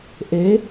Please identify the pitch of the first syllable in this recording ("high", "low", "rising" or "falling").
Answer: rising